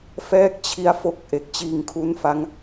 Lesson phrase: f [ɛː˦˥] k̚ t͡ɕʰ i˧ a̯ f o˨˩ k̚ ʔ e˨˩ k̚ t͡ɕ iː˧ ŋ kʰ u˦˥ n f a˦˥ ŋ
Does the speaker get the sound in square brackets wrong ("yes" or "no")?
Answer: no